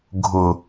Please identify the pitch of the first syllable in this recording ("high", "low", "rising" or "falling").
low